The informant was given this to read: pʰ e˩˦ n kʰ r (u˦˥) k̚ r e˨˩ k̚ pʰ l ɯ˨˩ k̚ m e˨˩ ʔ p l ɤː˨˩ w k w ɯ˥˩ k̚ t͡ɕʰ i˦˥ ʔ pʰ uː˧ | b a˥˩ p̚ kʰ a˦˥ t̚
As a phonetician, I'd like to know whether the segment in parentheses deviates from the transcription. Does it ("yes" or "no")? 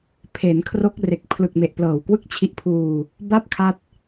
yes